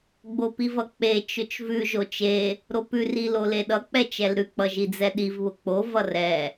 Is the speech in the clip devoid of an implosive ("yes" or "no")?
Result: no